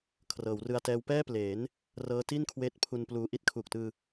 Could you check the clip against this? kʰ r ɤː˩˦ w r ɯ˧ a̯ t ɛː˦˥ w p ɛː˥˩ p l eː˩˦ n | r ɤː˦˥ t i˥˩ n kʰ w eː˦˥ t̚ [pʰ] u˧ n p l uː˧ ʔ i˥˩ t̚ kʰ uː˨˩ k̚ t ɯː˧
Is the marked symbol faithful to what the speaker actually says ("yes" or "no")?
yes